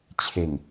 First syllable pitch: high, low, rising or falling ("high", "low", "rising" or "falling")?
low